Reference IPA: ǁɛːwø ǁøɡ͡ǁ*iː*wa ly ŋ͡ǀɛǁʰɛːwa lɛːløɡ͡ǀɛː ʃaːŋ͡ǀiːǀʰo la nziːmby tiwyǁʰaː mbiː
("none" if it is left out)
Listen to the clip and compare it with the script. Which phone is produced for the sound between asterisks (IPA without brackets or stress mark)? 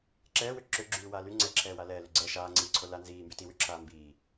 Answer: yː